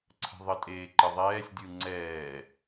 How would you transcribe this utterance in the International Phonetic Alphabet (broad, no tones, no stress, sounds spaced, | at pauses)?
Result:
ǀʰ ə̤ ðˤ ə tʼ eː ǃ ɘ ðˤ ɛː sʲ dʲ ɯ ŋ͡ǀ ɛː